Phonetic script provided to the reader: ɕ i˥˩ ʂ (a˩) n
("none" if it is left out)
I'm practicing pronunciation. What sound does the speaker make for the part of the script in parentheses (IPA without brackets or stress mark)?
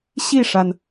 a˩